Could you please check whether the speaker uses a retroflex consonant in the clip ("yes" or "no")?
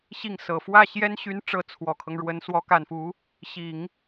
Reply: yes